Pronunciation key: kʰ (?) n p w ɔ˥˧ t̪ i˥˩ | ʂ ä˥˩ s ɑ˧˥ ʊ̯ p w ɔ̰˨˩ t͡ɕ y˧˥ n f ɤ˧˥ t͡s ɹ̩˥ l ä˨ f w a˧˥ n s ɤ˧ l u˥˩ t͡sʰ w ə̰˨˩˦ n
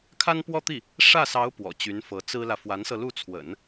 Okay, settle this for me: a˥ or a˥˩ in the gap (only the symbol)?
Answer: a˥